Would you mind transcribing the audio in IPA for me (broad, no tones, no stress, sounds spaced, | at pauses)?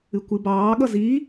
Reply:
ɨ kʷ ɨ b ɑː ɠ ʌ z i